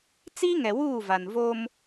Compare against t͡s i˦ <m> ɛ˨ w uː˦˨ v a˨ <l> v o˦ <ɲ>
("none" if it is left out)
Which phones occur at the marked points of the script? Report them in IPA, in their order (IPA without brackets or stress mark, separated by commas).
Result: ŋ, n, m